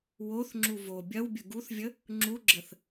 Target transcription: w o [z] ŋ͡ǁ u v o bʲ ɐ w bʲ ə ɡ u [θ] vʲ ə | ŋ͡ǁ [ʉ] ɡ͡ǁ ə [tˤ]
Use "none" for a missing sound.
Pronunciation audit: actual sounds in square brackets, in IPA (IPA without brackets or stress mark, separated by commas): θ, θ, u, θ